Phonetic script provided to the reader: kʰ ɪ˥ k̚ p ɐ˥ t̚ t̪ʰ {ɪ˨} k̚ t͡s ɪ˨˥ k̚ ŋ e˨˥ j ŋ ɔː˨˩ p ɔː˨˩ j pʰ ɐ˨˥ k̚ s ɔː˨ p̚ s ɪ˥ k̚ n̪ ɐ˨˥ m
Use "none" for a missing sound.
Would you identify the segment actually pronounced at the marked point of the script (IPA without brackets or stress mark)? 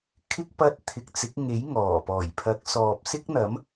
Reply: ɪ˨